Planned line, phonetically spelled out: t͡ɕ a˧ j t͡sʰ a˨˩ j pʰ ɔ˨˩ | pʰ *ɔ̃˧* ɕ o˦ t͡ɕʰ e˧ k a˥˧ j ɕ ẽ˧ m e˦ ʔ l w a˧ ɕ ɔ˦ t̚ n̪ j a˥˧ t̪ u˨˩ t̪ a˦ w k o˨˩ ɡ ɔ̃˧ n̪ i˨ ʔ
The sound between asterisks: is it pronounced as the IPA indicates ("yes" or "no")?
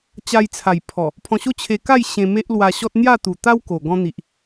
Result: yes